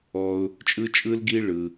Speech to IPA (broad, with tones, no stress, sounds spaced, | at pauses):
ɔ˧ ʊ̯ | t͡ʃʼ ɯ˧ t͡ʃʼ ɯ˧ l ɡ i˧ ɭ ɯ˧